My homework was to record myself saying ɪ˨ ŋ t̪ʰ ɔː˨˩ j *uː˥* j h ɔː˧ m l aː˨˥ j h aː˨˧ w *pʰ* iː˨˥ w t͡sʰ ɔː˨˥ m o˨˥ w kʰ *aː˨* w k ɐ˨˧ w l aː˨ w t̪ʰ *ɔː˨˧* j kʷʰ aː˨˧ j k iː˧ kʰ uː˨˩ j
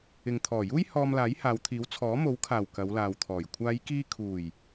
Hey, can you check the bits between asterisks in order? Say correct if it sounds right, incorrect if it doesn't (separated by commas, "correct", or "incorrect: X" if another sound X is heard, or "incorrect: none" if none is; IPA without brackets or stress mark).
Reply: correct, incorrect: t̪ʰ, incorrect: aː˨˩, incorrect: ɔː˨˩